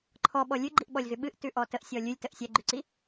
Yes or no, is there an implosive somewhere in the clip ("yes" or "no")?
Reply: yes